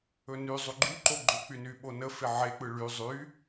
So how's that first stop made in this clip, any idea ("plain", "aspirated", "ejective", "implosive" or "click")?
click